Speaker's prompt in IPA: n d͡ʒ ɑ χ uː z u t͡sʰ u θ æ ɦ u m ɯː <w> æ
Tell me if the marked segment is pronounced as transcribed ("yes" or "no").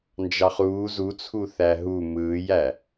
no